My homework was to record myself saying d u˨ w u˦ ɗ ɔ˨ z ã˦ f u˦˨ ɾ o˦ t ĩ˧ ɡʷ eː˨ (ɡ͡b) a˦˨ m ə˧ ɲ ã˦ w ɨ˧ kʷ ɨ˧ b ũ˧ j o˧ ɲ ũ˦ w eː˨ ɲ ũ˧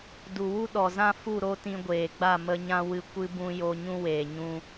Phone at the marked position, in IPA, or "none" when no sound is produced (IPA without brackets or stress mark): ɡ͡b